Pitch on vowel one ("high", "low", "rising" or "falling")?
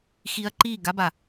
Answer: high